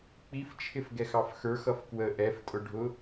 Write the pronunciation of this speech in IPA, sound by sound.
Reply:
k͡p i f t͡ʃʰ ɪ f ɡ ɛ x ɑ f x ə˞ x ʌ f k w ə ʔ ɛ f tʼ ʊ ɖʱ ʊ

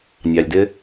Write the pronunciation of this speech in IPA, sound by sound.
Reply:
nʲ ɑ˩ lʲ d ɪ˥

